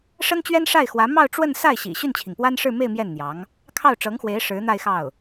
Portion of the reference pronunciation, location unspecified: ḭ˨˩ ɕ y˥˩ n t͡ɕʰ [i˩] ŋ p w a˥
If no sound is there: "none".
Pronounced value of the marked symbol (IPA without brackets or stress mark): i˩